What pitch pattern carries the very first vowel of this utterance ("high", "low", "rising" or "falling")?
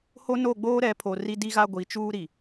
high